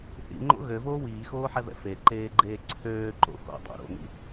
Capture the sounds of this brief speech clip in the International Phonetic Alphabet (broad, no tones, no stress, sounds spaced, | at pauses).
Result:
θ ḭ ŋ͡ǃ o̰ ɣ ø v oː w iː x oː ħ ɛ v ɛ̰ f e ǃ eː ɡ͡ǃ eː ǀʰ øː ǃ o̰ x o̰ dˤ o̰ ɾ o̰ n ḭ